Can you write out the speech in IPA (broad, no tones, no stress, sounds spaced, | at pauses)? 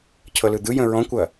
cʰ ɤ l ɯ d̪ ɯ j ə̃ ɹ ɔ̃ kʷ ɐ